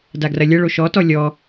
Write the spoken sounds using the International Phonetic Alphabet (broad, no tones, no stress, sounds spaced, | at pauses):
d a ɡ r ɐ lʲ ɐ ɭ o ʃ ɔ t ɔ lʲ ɔ